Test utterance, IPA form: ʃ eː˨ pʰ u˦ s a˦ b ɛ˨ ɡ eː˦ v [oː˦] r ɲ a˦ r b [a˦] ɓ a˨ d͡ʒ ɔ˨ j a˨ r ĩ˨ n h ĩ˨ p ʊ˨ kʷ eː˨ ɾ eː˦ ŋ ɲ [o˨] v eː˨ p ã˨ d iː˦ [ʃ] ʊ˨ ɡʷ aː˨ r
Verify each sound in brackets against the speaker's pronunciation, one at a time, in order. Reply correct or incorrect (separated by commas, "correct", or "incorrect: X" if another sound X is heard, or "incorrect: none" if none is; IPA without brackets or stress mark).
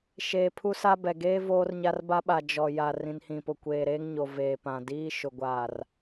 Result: correct, correct, correct, correct